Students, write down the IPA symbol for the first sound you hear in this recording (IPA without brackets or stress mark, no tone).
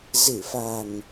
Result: z